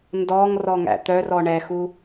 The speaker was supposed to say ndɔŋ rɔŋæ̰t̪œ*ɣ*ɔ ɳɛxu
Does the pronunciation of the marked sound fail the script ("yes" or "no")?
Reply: yes